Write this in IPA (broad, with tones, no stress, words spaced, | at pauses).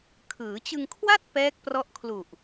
kʰɯː˩˦t͡ɕɯ˧ŋkʰwa˥˩t̚ pɛː˦˥k̚prɔ˦˥ʔkʰlu˨˩ʔ